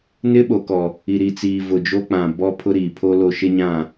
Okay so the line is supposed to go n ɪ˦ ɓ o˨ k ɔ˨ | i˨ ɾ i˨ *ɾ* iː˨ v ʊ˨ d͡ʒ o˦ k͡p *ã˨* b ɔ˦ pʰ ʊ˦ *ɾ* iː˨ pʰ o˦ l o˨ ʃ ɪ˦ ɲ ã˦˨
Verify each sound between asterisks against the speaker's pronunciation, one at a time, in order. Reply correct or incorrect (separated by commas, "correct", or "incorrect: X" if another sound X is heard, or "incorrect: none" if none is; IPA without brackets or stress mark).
incorrect: t͡s, correct, correct